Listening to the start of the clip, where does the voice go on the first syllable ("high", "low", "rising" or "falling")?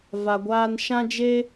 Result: low